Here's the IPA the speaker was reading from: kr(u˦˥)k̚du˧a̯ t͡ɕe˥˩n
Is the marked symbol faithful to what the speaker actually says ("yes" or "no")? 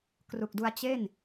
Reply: no